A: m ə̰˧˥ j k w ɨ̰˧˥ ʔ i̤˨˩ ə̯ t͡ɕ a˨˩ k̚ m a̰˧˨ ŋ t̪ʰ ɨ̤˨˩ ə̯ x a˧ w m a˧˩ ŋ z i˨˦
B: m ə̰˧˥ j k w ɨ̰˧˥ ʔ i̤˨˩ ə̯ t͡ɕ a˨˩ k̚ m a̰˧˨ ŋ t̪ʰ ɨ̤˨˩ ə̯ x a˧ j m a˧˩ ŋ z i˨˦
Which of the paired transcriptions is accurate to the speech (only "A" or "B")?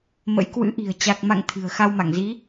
A